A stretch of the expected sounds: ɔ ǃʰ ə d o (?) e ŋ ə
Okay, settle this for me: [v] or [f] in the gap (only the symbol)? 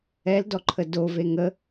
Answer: v